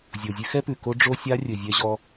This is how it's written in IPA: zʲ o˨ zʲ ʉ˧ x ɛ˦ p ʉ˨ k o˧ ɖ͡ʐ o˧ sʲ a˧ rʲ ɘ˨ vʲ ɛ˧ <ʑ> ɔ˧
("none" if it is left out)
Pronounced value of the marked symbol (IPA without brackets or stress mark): ʑ